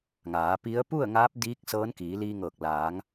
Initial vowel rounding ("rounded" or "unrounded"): unrounded